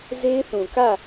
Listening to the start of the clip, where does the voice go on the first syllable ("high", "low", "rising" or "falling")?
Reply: high